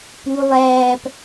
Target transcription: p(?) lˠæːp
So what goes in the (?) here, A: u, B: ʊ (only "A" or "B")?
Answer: A